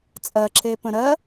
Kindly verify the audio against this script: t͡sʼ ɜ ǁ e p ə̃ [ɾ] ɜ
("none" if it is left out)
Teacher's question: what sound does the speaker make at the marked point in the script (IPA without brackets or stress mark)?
ɾ